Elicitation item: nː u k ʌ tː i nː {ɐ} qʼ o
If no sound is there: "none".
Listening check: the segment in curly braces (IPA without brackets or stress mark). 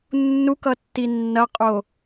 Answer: ɐ